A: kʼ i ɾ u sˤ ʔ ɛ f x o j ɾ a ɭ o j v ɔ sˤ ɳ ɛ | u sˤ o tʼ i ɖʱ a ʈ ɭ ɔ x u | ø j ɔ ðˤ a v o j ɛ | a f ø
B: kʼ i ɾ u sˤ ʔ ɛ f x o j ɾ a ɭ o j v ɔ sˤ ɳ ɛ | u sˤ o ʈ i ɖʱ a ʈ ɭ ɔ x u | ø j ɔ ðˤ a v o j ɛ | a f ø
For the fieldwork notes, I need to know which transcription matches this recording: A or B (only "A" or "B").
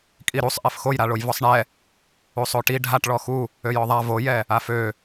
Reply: B